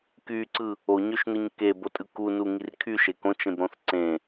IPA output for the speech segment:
kyǀɯ | oɲøʃnɯɲ kebotʼɯ kunuŋir kʰyʃe kõt͡ʃẽbɾõθ ǀẽ

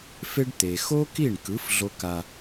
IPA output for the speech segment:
fe˦ɖt̪e˨ xo˦ki˦˨ɳkɯ˨˦f ɮo˦ka˦

